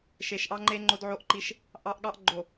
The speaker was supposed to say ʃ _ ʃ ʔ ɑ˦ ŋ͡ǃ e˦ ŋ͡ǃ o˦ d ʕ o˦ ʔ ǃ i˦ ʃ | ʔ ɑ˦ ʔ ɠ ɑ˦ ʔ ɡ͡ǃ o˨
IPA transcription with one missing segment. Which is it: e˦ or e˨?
e˨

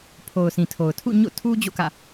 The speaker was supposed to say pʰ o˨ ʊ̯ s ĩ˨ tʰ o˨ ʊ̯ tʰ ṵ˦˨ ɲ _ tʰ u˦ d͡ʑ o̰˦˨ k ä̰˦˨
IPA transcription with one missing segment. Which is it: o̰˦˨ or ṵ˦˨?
o̰˦˨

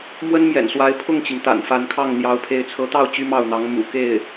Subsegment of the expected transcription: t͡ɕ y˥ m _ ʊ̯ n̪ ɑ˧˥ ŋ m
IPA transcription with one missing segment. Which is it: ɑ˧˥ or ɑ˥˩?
ɑ˥˩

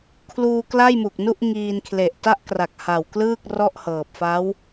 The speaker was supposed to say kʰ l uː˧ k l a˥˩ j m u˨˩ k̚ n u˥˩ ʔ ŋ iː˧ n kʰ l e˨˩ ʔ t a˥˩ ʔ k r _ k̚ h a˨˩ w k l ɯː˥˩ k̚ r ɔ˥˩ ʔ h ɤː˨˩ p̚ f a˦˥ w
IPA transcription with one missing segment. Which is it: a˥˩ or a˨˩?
a˨˩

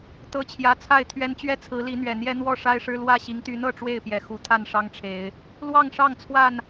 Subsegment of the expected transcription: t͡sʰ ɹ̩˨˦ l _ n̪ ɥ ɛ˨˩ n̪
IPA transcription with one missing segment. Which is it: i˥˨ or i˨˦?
i˨˦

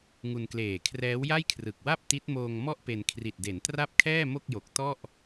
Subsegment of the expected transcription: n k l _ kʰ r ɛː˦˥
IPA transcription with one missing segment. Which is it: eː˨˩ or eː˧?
eː˨˩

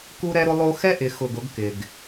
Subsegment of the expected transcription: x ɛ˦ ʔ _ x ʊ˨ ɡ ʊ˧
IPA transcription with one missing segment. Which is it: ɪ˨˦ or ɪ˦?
ɪ˨˦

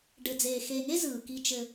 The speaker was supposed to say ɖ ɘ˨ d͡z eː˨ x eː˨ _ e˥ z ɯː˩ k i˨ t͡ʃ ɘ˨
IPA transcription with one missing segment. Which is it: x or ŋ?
ŋ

